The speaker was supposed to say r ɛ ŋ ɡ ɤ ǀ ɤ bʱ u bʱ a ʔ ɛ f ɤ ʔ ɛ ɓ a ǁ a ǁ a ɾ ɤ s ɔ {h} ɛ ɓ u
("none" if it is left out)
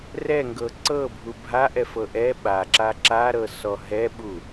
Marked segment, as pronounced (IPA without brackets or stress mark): ɦ